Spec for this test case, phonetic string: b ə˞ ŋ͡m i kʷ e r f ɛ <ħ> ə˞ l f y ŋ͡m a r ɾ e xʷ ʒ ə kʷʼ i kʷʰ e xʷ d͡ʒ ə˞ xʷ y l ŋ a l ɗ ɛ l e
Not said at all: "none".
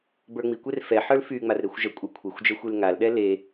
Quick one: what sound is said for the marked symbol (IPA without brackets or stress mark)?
ħ